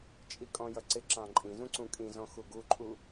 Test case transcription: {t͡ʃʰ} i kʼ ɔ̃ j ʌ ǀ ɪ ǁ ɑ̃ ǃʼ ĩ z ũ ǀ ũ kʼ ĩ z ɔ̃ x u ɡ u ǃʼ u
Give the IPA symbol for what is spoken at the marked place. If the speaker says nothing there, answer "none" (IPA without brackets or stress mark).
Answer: t͡ʃʼ